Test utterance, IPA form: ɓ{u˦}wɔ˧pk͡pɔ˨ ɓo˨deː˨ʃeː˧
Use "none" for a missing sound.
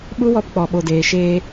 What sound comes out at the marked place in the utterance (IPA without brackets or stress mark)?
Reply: u˦